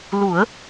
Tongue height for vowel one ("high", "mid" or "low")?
high